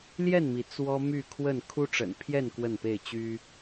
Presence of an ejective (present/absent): absent